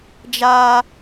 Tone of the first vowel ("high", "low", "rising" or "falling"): high